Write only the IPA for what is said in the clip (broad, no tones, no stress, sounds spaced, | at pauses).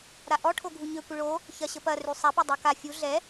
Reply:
ɾ a ʔ ɔ ʈʰ o ɡʱ u ɲ ø kʷ ɪ ɭ o | ç ɐ ɕ ə p ɐ r y sˤ a p ɛ dˤ o k a fʲ u ɮ ɛ